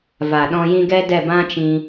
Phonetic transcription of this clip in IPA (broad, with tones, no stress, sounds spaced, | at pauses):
v a˨ ɗ ɔ̃˧ j ĩ˦ ɡ ɛ˦ d ɛ˦˨ b ã˦ t͡ʃ ĩ˧